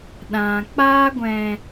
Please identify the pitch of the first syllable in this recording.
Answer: low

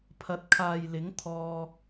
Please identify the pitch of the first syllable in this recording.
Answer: rising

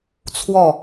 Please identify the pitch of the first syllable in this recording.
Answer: falling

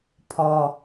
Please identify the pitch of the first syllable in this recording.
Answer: high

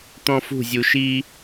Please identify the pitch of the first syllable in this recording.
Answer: high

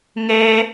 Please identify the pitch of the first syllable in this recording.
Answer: high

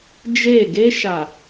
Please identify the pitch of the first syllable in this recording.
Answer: falling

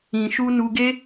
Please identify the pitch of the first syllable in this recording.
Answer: low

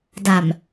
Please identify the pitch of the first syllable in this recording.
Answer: low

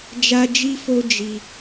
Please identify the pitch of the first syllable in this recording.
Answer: high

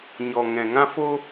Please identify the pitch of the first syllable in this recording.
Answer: low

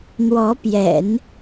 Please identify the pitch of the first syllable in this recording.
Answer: rising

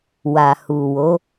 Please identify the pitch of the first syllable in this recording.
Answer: low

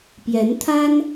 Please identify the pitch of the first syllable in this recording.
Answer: rising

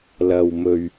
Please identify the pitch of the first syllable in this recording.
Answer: low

